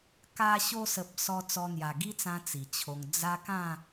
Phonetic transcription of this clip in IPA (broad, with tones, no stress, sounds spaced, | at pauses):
k a˧ ɕ o˧ s ə˨ p̚ s ɔ˧ t͡s ɔ˧ n̪ j a˨˩ ɡ i˦ t͡s ã˧ t͡s i˨˩ t͡ɕʰ o˧ ŋ d͡z a˦ k ã˥˧